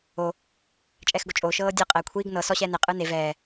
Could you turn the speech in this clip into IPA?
o | t͡ʃʼ ɛː x ɡ o t͡ʃʼ oː ʃ ɤː dʲ ɤ qʼ ɛː kʷʰ iː ɡ n ɤ s ɔ ɕ ɛː n e qʼ ɯː n e v ɛː

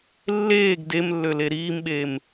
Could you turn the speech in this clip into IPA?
lː eː ɡ d e m lː ø l e ɾ iː m ɓ eː m

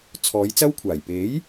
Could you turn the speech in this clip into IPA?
t͡sʰ ɔː˨˧ j t͡s ɐ˥ w kʷʰ aː˨˩ j p e˨˥ j

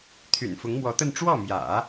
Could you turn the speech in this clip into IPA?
t̪ʰ y̰˨˩ n f ʊ˧˥ ŋ m w ɔ˧˥ t̪ ə˥˧ n ʈ͡ʂ w ɔ˥˩ m j ä̰˨˩˦

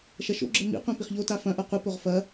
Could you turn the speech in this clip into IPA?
ʃ ɐ ʃ o̰ ɡ͡ǁ ɘ m ḭ qʷ ẽ p i χ ʎ o t a f ɐ̃ ʔ ɐ qʷ ɨ p o ʁ f ɐ

